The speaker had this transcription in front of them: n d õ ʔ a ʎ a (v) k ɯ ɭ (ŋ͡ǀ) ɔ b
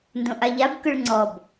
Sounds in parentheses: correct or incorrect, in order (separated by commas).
incorrect, correct